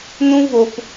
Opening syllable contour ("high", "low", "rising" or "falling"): high